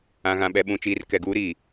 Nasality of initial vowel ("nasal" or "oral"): nasal